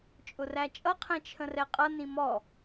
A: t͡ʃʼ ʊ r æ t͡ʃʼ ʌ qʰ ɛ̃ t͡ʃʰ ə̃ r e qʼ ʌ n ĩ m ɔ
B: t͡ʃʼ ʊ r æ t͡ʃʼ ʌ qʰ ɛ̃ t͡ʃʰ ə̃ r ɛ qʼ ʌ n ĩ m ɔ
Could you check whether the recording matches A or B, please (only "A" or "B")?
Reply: B